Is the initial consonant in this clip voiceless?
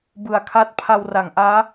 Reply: no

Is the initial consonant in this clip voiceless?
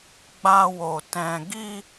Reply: no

